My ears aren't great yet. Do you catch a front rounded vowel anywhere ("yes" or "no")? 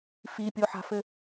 no